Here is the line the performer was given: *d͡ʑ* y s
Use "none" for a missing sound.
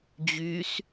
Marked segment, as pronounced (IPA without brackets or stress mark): d͡ʑ